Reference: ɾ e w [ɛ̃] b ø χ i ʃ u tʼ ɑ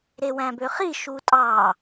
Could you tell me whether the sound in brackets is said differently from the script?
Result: yes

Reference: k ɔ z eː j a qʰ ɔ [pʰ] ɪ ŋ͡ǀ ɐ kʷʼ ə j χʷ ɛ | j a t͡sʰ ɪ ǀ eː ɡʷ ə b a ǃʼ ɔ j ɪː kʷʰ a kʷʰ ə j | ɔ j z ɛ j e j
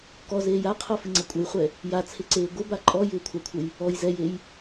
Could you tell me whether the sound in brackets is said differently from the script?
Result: yes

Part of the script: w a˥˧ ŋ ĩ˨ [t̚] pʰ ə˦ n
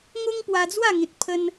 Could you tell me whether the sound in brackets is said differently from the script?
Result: no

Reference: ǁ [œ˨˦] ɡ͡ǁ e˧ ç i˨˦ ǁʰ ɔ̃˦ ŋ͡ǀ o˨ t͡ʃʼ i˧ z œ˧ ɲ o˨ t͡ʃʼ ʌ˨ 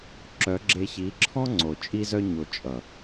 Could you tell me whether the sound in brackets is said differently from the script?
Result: no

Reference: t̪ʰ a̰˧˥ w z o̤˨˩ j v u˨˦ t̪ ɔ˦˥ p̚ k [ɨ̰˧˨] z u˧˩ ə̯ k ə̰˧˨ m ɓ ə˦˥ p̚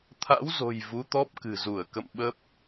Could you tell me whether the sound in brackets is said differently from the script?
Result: yes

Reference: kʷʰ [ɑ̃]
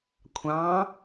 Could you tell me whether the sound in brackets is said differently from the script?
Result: no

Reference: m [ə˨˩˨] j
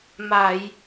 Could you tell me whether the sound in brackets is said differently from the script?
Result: yes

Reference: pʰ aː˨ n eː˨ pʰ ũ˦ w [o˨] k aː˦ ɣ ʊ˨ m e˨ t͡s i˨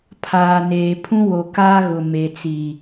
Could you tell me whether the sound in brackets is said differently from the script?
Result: no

